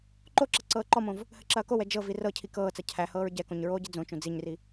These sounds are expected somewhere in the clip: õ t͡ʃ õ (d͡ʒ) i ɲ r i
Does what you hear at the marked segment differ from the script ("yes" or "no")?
yes